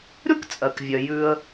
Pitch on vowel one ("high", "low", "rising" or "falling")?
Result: high